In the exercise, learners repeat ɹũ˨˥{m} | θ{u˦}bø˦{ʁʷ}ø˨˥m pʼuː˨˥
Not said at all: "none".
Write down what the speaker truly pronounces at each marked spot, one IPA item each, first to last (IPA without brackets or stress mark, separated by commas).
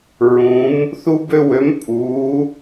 m, u˦, w